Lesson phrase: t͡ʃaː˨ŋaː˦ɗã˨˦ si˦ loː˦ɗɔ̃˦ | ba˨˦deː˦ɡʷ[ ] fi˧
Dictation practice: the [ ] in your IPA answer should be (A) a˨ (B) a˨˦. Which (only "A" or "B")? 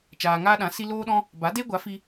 B